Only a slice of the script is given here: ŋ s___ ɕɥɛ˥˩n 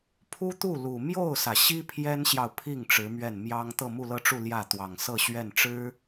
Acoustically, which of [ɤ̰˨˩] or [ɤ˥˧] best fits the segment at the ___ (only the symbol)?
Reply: ɤ˥˧